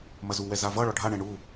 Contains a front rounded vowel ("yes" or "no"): no